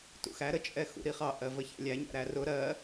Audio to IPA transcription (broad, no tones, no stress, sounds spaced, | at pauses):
t ṵ x æ ɾ ə t͡ʃʼ ɛ x ṵ ɾ i χ ɑ ʔ ɜ v ə ç æ̰ lʲ æ ɲ æ̰ ɾ æ r ʊ ɾ ɜ